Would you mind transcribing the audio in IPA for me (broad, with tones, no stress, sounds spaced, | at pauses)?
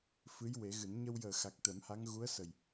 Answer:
f ɨ˧˥ j w e˨˩˦ ɣ ɨ˨˩˦ n ɲ ə˧ w j əː˨˩ x a˨˩ k̚ t̪ ɛ˨˩˦ m h a˧˥ ŋ ɣ u˧˥ ə̯ s ə˨˩ j